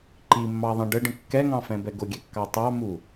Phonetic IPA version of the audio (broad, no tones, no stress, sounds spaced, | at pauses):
ǃ i mː ɑ ðˤ ĩ ɖ ə ɖ ə̃ kː ɛ ŋ ɑ̃ f ɛ̃ b ɛ ɡ ʊ ɡʲ ɛ kː ɑ tˤ ɑ m u